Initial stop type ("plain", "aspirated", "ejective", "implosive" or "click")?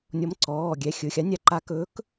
click